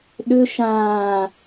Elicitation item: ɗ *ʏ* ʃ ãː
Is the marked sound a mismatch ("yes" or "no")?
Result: no